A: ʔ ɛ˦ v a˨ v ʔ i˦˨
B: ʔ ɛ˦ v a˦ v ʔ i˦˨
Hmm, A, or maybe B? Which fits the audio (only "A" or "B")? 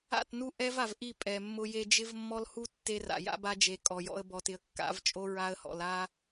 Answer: A